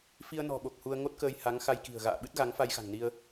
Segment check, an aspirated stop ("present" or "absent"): absent